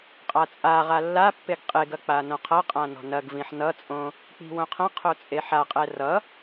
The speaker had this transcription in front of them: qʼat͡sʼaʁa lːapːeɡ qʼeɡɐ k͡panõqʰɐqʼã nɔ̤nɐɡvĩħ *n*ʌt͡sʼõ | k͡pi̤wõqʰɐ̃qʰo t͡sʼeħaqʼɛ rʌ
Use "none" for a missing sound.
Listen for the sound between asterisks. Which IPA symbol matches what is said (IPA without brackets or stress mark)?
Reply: n